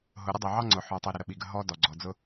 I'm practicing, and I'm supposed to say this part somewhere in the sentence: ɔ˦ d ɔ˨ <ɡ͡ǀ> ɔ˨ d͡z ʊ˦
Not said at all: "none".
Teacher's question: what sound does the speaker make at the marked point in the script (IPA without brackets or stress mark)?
ɡ͡ǀ